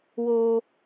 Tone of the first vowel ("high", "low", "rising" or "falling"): high